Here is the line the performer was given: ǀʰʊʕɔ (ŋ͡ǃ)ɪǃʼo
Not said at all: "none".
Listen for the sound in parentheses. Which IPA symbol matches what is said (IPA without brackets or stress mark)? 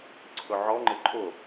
ŋ͡ǃ